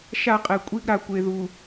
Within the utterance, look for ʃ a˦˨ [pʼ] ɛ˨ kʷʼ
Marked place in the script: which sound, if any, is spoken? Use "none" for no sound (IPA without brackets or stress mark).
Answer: qʼ